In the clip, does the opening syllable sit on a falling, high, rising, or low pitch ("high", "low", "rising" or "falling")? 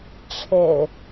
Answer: low